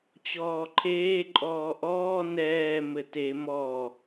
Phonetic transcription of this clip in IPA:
t͡ɕɔːǃʰeː ǃʼɔːʔɔː nɛː mɘte mɔ

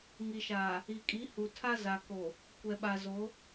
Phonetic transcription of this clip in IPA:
ŋi˨ʃaː˨ | i˨kʼi˨˦ hu˨tʰa˦ za˨ko˨ | kʷɛ˨ɓa˨zo˨˦

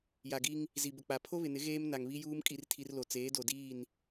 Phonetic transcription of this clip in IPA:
ja˨ɡi˦ŋ | zi˨bʊ˨k͡pa˨ pʰo˦βɪ˨nɪ˨˦ ɣeː˦m na˨ŋβi˦juː˦m kʼi˦rtʰi˦rlo˨ t͡seː˨˦do˨diː˦˨n

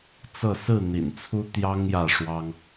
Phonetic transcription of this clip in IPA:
t͡sɤ˥˨ sɹ̩˥˨n̪ḭ˨˩nt͡sʰu˦ t̪jɑ˦ŋ jä˥˨ʂwɑ˦ŋ

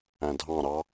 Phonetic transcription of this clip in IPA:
æ̃dʱɑ̃ɾɑ

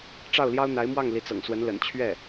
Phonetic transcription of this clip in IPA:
ʈ͡ʂɑ˥˩ʊ̯ljɑ˥ʊ̯n̪a˧˥ɪ̯mwɑ˥˩ŋ li˧˥t͡sɤ̰˨˩ŋ swə˧˥nlə̰˨˩n t͡ɕʰɥɛ˥˩

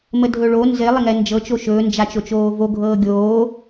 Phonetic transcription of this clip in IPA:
mədʱɵɭo nzɪ lˠɪŋɛnd͡ʒɤ t͡ʃoʃɵː nd͡ʒat͡ʃot͡ʃoːvo ɡʱɤːɡʲoː

